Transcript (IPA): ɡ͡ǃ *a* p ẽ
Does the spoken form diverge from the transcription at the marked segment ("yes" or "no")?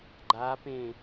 no